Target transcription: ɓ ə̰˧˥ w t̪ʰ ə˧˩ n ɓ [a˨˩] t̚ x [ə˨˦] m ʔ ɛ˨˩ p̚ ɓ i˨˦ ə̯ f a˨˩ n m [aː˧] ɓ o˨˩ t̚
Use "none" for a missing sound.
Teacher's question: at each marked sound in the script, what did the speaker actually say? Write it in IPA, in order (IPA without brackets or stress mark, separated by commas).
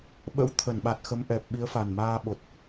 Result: a˨˩, ə˨˦, aː˧